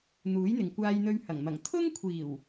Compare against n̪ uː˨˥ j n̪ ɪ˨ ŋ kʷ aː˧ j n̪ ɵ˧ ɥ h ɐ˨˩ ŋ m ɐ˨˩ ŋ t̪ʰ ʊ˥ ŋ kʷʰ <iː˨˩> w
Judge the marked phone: correct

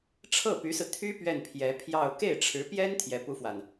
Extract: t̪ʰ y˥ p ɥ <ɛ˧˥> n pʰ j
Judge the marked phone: incorrect: ɛ˥˩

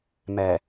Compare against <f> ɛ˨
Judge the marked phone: incorrect: m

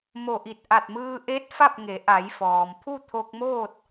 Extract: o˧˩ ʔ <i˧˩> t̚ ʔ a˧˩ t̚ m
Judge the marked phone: correct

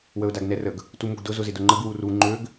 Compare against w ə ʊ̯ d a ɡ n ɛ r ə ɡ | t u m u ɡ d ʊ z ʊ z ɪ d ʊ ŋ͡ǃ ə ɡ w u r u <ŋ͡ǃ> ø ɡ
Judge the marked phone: correct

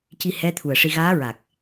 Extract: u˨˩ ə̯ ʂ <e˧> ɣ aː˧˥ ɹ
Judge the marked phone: incorrect: i˧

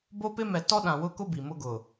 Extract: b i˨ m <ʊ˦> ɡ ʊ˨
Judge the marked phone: correct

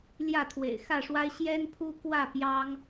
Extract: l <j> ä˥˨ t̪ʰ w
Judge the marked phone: correct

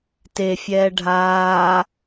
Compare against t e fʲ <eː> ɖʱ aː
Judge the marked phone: incorrect: ɛː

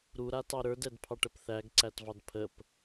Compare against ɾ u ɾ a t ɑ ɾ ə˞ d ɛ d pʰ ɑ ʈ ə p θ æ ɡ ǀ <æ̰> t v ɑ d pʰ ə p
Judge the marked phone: incorrect: æ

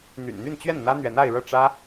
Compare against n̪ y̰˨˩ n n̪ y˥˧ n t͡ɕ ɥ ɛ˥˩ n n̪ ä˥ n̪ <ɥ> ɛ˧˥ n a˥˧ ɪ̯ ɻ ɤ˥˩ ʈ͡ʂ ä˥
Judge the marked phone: correct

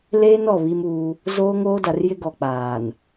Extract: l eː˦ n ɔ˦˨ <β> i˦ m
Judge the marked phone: correct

